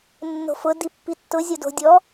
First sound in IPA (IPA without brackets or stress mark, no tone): nː